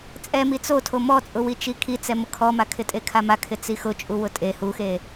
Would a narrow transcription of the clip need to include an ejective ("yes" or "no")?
yes